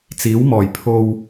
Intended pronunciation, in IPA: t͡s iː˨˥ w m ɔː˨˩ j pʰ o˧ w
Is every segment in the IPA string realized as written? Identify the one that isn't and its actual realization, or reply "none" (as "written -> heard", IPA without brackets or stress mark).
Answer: none